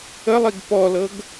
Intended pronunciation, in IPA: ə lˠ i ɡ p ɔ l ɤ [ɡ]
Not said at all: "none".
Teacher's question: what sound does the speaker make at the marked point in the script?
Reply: ɡ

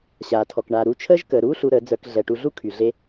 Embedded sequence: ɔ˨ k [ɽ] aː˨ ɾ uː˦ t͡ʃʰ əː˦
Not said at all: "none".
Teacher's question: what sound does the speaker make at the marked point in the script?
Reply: ɳ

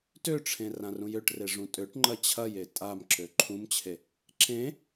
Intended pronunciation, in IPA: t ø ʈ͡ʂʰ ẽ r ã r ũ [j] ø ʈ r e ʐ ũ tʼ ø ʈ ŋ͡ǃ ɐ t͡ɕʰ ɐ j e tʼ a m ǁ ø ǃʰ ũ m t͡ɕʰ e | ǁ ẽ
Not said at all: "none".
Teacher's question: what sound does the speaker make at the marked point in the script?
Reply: j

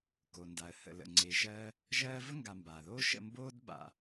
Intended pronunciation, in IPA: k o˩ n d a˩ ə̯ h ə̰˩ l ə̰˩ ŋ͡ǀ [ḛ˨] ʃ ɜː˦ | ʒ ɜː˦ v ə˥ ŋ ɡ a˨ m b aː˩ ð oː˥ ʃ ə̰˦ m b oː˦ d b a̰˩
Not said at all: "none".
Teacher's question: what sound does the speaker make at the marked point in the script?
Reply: e˨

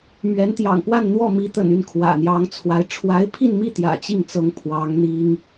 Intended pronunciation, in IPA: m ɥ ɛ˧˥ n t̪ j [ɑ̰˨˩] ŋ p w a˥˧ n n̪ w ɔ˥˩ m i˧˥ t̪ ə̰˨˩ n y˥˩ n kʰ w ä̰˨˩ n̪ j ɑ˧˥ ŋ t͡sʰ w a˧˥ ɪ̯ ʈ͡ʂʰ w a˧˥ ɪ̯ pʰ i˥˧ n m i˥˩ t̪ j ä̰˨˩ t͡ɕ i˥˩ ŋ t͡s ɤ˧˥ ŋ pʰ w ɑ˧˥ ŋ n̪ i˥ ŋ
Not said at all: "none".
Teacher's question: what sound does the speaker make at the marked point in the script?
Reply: ɑ̰˨˩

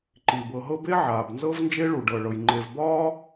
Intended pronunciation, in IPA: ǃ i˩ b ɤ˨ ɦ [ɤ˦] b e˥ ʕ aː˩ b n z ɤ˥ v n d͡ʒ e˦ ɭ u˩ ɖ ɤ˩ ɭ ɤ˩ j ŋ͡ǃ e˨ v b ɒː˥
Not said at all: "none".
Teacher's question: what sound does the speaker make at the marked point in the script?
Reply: ɤ˦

